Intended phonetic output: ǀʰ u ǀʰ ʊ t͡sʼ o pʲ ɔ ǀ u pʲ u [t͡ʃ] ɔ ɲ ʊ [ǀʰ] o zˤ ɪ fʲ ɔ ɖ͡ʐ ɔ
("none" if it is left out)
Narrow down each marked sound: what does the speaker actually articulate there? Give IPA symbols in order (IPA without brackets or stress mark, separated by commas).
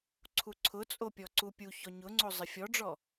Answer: ç, ŋ͡ǀ